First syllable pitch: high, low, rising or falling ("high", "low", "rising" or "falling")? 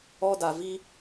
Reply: high